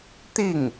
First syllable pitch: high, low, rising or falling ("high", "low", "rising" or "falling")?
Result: falling